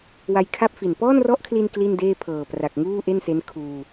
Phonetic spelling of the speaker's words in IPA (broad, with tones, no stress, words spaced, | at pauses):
wa˧jkʰa˥˩p̚fi˨˩n pɔː˥˩nrɔ˦˥ʔkʰli˧n kli˥˩ndeː˥˩pʰɤː˨˩ pra˨˩k̚ŋuː˥˩ ʔe˥˩nse˦˥nkʰuː˧